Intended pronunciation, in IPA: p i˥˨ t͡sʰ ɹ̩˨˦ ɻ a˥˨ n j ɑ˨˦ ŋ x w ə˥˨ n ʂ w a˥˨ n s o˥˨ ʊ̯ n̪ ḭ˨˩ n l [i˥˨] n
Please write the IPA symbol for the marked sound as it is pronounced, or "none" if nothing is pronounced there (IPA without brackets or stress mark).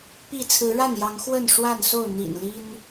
i˦